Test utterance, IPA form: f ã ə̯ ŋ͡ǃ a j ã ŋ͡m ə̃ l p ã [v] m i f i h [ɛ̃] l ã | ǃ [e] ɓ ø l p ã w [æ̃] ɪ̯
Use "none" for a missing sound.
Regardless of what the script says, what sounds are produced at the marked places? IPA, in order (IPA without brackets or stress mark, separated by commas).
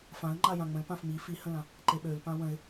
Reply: f, ə̃, e, ə̃